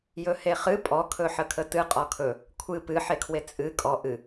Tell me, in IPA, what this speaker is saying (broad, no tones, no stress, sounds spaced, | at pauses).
j ɵ h e χ ɨ pʼ ɔ kʰ ɵ ħ ə kʰ ə t ɨ qʼ ɔ kʰ ɵ | kʷʰ ɨ p ɨ ħ e kʰ w e t͡sʼ ɨ kʼ ɔ ʔ ɨ